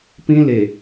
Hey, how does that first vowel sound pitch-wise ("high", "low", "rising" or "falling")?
high